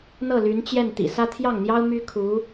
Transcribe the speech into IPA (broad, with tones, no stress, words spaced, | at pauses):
n̪ɤ˥˩ly˧˥nt͡ɕjɛ˥˩n t̪ḭ˨˩sä˥ t̪ʰjɑ˥˩ŋn̪jɑ˥ʊ̯ my˥kʰu˧˥